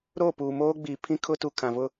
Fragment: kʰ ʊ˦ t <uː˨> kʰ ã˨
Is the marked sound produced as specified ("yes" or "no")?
no